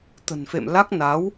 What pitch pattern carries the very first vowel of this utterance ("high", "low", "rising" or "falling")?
low